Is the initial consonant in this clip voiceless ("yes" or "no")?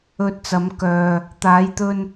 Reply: yes